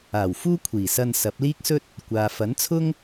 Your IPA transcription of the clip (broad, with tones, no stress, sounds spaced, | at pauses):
aː˨˩ w f uː˥ kʷʰ iː˨˩ s ɐ˧ n s ɐ˨˥ p̚ l iː˥ k̚ s ɵ˥ t̚ | kʷ aː˨ f ɐ˨˥ n t͡sʰ ʊ˥ ŋ